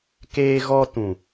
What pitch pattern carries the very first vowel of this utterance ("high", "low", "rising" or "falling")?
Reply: high